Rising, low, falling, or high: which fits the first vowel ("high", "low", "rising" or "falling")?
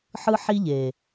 high